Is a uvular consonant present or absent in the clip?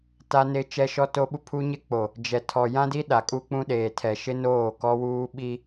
absent